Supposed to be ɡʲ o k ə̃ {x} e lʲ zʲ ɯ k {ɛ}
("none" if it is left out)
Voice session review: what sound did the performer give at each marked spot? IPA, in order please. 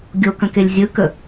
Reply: k, ə

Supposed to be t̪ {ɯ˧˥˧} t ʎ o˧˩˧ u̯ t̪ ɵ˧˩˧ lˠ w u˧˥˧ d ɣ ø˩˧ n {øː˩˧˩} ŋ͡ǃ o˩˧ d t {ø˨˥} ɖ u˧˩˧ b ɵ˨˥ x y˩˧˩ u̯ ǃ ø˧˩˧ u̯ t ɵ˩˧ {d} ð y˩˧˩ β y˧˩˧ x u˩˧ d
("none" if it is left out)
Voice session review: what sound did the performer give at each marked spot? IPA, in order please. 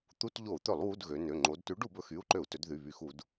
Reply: u˧˥˧, ø˩˧˩, ʉ˨˥, d

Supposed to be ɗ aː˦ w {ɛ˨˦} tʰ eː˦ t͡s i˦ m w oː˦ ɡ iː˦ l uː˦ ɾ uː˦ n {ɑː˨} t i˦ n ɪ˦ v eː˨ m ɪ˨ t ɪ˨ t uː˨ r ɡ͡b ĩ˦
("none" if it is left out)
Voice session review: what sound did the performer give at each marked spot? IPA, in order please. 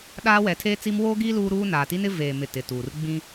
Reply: ɛ˨˦, aː˨

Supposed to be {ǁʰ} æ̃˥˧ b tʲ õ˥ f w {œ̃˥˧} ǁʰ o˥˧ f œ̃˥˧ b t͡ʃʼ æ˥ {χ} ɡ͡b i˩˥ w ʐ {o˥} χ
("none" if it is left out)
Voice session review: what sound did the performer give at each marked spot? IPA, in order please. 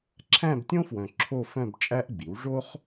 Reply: ǁʰ, œ̃˨, ʔ, o˥

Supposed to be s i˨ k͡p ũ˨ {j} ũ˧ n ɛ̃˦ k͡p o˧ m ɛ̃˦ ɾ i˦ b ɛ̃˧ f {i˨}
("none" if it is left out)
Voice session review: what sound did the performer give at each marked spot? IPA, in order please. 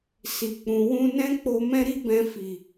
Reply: w, i˨

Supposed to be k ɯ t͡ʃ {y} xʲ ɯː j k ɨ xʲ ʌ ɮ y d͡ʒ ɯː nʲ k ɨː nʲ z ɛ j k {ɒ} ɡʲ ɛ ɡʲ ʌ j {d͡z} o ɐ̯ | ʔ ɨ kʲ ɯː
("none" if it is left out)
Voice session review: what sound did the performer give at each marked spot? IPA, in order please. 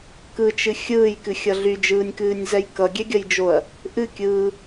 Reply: ɨ, ʌ, d͡ʒ

